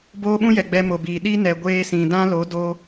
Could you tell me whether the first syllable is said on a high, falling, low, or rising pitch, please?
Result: high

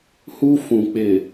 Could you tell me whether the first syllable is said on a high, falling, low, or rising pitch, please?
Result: high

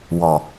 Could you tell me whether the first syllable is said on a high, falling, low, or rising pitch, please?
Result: low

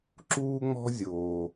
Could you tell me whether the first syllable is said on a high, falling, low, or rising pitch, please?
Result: high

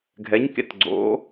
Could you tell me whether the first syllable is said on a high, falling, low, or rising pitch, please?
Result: rising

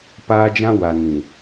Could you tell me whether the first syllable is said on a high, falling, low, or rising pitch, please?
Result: high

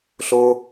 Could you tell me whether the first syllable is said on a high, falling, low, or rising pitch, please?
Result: high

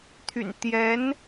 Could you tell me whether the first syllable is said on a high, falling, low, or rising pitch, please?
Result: low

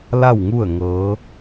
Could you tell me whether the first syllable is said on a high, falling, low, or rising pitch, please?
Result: falling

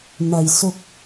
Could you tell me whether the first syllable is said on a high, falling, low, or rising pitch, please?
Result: low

